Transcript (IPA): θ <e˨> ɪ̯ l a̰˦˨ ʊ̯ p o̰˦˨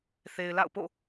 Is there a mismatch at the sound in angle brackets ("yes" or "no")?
no